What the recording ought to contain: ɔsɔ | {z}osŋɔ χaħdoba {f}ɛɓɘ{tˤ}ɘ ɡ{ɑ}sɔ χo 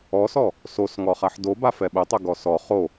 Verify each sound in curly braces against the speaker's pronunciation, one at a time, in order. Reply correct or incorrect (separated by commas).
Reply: incorrect, correct, correct, incorrect